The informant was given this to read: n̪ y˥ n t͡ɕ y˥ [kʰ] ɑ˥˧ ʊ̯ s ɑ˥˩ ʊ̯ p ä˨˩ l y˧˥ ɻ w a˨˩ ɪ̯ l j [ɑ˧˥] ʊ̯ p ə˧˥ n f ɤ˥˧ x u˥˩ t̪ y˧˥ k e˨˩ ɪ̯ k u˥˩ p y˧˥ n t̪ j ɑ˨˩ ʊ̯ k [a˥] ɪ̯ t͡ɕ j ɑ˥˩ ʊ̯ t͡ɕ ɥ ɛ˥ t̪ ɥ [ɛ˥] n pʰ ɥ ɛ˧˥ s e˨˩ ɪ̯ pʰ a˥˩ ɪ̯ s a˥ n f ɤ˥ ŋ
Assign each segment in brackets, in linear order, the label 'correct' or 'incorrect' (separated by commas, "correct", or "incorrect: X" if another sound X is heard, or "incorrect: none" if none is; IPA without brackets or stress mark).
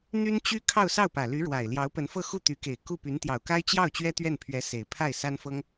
correct, correct, correct, incorrect: ɛ˥˩